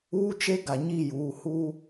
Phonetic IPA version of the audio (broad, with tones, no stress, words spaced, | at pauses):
uː˦t͡ʃe˦ ɡa˨ɲi˦˨juː˨ huː˦